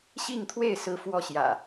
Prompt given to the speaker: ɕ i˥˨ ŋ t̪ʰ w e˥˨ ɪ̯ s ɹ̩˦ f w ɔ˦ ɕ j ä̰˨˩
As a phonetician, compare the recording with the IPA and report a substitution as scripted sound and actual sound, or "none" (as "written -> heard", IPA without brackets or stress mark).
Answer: none